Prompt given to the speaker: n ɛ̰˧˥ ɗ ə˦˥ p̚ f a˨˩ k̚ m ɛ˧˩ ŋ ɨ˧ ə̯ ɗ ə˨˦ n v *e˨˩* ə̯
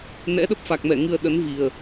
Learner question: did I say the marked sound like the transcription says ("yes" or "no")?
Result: no